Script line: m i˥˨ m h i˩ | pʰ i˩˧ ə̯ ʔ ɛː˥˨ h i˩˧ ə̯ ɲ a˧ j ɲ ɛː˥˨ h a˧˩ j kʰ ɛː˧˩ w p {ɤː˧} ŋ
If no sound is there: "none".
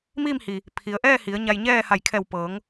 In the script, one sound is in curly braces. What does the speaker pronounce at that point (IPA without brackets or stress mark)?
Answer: ɤː˩˧